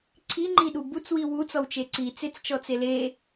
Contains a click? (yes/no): yes